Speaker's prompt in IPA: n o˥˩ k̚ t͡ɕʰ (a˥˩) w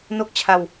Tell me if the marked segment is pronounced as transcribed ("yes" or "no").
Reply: no